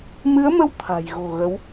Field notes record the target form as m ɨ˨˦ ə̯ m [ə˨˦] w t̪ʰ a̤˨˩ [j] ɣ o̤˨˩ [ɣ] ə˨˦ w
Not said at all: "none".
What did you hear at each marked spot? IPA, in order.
ə˧, j, ɣ

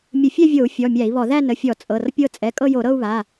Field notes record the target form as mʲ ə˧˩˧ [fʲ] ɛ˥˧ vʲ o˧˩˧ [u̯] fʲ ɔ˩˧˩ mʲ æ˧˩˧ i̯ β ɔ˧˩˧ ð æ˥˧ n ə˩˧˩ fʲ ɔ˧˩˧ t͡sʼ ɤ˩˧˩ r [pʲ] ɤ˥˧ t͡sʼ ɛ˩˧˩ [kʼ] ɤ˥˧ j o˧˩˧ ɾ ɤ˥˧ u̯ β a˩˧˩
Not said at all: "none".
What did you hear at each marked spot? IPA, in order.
fʲ, u̯, pʲ, kʼ

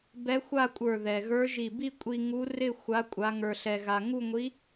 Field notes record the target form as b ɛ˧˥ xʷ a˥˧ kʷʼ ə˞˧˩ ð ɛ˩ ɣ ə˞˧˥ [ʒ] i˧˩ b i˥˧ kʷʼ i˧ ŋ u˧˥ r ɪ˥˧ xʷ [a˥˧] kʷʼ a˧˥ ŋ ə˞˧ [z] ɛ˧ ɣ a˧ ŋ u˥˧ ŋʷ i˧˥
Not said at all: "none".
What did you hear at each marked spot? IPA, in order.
ʒ, a˧˥, ɬ

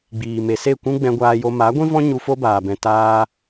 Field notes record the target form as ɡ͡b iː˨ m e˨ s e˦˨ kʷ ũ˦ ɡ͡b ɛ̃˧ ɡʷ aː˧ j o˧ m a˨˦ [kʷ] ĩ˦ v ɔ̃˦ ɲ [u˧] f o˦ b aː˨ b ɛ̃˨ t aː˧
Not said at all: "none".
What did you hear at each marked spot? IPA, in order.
ɡʷ, u˧

